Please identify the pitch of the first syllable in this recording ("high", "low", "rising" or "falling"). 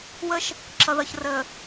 high